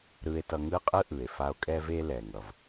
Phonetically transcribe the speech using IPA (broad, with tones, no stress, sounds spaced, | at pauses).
ɾ ɯ˧ e̯ t ʌ˧ ŋ ɯ˥ qʼ ɯ˥ ʔ ɯ˩ e̯ f a˧ o̯ kʼ ɛ˧ v e˧ l ɛ˩ ŋ ʌ˩ v